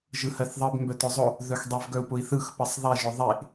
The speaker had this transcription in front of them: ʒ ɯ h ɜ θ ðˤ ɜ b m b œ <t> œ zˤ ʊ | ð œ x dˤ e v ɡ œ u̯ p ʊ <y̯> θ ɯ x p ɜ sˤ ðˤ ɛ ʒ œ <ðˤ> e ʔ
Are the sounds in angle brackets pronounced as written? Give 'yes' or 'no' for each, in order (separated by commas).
yes, no, yes